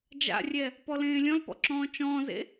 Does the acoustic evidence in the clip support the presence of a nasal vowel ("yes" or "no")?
yes